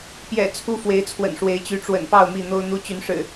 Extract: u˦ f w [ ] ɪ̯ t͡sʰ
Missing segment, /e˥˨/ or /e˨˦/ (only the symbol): e˨˦